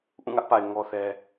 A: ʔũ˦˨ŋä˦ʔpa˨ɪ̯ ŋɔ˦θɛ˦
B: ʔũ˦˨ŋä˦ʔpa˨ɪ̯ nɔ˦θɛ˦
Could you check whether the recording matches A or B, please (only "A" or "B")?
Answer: A